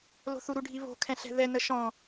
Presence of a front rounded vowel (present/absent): absent